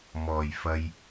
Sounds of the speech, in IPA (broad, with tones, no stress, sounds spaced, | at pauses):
m ɔː˨˩ j f ɐ˧ j